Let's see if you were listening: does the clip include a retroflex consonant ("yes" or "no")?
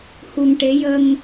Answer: yes